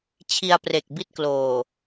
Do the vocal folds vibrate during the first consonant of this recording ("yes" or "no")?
no